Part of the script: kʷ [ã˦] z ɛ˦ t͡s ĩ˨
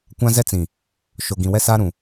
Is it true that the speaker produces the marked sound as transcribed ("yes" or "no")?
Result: yes